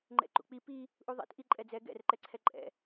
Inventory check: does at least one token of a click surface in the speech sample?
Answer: yes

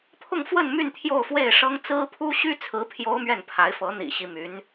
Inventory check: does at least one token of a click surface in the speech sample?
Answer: no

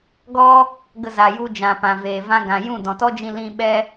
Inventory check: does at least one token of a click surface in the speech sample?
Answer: no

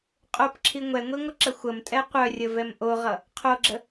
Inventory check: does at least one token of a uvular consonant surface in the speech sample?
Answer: yes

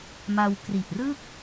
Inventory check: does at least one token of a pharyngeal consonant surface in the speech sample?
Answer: no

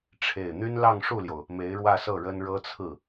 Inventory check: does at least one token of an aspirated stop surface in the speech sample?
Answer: yes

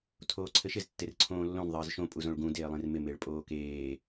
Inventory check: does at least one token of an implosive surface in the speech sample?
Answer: no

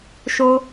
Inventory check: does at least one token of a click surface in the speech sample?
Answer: no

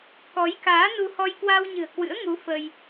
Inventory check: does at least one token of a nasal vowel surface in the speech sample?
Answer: no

